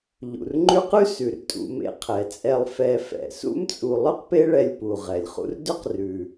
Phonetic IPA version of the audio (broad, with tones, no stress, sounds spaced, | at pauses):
ʎ ṵ˩ r ŋ͡ǃ ʉ˦ q ʉ˥ s ʉ˩ r tʼ ṵ˨ m ḛ˨ qʰ ɛ˩ t͡sʼ ɛ˨ lˠ f ɛ˨ f ɛ̰˩ s ṵ˥ m t͡sʼ u˨ lˠ ʉ˥ q p e˦ ɭ ɛ˨ lʲ p u˩ ʁ ɛ˩ lʲ χ ṵ˦ r d ʏ˥ q r ʉ˩